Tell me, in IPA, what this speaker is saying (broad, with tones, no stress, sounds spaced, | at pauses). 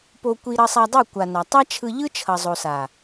p o˧ kʷ i˧ ɾ ʌ˧ sˤ a˧ dˤ i˦˨ kʷ a˨ n a˨ tˤ a˦ t͡ʃʰ ɯ˧ ʎ ɯ˦ t͡ʃʰ ʌ˨ zˤ o˨ s a˨